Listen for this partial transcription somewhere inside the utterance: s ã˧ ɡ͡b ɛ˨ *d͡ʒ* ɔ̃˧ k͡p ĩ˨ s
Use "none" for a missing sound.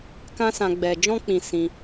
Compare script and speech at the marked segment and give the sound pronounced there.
d͡ʒ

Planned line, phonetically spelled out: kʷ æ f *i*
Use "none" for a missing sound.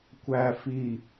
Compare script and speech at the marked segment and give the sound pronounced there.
i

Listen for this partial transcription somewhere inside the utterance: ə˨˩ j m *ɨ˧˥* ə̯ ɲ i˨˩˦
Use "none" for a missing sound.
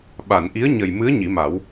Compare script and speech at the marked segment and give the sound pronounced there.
ɨ˧˥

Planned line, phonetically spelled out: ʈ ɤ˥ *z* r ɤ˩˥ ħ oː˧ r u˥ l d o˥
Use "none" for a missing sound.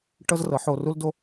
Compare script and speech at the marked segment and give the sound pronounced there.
z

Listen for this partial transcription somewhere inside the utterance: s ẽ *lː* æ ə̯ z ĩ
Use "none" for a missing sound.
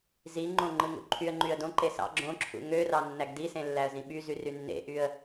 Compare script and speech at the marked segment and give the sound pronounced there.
lː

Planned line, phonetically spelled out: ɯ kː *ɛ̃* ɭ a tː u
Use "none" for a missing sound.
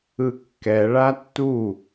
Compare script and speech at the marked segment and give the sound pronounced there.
ɛ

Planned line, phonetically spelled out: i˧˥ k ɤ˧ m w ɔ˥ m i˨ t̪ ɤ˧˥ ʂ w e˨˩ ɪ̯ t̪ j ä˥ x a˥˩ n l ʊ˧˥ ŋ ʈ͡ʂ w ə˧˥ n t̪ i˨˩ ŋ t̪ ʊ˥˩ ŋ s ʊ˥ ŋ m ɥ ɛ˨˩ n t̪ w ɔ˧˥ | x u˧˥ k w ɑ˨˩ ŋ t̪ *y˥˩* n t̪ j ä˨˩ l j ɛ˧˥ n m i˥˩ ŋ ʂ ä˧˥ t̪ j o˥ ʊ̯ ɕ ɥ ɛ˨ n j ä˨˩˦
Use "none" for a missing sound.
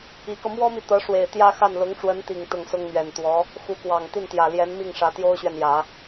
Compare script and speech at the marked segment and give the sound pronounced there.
i˥˩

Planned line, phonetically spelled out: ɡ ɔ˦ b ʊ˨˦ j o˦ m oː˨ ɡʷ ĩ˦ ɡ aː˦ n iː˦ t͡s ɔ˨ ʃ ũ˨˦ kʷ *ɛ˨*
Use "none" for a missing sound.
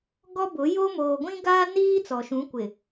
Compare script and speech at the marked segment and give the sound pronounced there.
ɪ˨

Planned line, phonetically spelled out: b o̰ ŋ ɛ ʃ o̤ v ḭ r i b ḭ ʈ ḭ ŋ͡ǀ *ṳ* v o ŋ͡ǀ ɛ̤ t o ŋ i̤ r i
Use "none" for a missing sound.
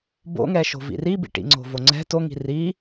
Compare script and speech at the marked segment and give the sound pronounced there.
o̤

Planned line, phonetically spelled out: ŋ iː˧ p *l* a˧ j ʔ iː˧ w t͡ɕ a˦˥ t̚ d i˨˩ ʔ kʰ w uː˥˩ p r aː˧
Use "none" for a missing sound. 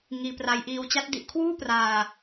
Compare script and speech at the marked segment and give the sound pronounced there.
r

